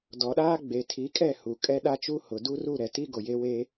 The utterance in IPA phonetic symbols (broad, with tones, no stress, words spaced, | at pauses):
dɔ˨ɗaː˦ɡ͡be˨ tʰi˨˦kʼɛ˦˨ hu˨ kʼɛ˦ɗa˦t͡ʃu˦hʊ˨ du˦ru˦˨ ɾɛ˨ti˦ ɡo˨je˦weː˦